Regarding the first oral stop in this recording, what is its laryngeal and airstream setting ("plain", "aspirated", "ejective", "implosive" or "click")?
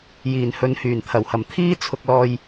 aspirated